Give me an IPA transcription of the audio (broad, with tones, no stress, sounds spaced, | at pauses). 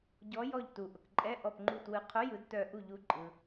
ɟ ɔ˨˦ j ɔ˧˩ ʎ t u˩ ʔ ʊ˩ k ǃʼ ɛ˧˥˧ ʔ ɔ˧˩ p ŋ͡ǃ u˧˩ t w ɯ˨˦ qʰ ʊ˧˥˧ j ɯ˨˦ d t œ˧˩ ʔ u˧˩ ʎ u˨˦ ǃʼ ɯ˩